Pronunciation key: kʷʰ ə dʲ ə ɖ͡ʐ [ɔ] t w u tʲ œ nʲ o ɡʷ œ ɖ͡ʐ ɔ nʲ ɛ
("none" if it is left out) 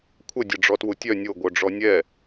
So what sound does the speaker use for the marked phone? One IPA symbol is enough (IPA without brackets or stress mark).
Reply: ɔ